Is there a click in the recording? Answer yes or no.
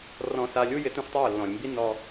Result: no